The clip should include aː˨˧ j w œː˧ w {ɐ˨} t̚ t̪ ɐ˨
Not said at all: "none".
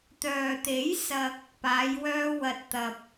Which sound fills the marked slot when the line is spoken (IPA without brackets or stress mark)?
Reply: ɐ˨